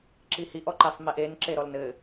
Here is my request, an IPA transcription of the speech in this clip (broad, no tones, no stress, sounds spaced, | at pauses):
ǁ i h i ʔ ɔ ǃ e sˤ m e ʔ e n ǁ e ɾ ɔ l n ɘ